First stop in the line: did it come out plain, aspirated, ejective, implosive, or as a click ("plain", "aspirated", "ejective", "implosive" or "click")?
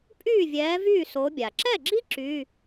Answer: ejective